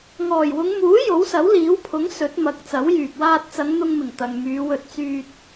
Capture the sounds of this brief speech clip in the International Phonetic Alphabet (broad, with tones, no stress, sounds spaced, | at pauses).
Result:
ŋ ɔː˨˩ j w ʊ˨˧ ŋ m uː˨˥ j o˨˥ w s ɐ˨˥ w l iː˨˥ w pʰ ʊ˨˥ ŋ s ɵ˨˥ t̚ m ɐ˨˥ k̚ t͡s ɐ˨˥ w j yː˨ p̚ w aː˧ t̚ t͡s ɐ˨˧ ŋ n̪ ʊ˧ ŋ m ɪ˨˩ ŋ t̪ ɐ˨ ŋ m yː˨˧ w ɵ˧ t̚ t͡s yː˧ t̚